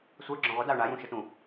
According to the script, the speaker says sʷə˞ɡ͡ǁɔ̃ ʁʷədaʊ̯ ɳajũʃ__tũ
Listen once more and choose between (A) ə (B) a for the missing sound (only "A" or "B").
A